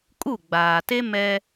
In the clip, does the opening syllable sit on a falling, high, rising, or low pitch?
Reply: falling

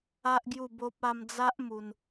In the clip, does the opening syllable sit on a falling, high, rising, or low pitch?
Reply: high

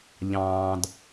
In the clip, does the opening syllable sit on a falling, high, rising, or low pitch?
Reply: low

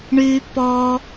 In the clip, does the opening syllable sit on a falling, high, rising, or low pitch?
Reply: high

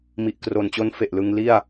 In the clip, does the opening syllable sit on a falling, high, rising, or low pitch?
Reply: low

